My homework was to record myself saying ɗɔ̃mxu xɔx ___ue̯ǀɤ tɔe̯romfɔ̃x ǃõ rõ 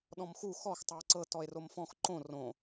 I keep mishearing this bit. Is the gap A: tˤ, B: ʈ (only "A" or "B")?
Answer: A